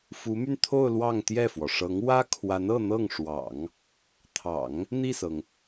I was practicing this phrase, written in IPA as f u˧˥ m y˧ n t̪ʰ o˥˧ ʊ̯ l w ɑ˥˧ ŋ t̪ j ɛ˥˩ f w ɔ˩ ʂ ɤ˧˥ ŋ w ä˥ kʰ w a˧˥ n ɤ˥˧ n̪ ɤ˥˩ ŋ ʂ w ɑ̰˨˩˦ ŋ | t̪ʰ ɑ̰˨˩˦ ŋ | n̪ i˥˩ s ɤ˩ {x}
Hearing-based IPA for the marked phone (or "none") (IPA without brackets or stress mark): ŋ